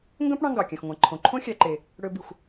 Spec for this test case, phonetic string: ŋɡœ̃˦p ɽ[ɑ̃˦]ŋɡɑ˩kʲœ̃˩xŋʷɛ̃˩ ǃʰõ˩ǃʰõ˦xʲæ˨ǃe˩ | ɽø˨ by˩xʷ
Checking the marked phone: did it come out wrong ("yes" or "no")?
no